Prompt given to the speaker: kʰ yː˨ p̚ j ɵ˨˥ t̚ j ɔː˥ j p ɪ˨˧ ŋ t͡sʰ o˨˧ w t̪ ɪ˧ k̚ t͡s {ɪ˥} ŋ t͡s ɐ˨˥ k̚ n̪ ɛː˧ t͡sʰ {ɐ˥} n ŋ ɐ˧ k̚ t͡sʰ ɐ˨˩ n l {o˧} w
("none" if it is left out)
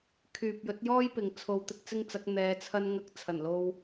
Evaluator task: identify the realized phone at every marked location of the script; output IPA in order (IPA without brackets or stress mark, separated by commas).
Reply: ɪ˥, ɐ˥, o˧